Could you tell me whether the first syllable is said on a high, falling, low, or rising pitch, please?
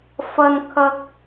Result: high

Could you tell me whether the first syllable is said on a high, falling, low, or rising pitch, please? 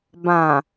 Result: low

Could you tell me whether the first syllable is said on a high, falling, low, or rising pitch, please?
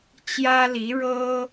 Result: high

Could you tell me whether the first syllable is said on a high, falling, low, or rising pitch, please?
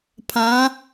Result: rising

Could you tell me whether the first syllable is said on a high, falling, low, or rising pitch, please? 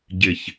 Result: low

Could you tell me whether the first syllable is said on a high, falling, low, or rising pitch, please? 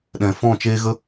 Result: low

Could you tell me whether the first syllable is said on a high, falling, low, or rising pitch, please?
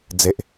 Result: low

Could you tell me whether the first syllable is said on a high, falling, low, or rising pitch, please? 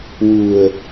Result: low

